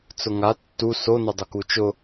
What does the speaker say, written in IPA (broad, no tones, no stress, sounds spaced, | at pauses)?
t͡s ʊ ŋ a tː u s o n ɛ dˤ ʊ k u t͡ʃ ʊ